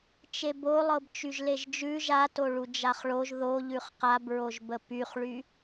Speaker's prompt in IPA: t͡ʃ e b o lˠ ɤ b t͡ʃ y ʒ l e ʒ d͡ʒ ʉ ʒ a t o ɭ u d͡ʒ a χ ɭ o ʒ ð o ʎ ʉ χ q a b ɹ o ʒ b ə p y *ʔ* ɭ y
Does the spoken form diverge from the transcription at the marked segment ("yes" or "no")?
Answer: yes